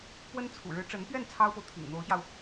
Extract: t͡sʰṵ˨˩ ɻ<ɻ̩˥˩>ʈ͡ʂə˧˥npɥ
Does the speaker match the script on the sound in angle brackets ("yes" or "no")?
no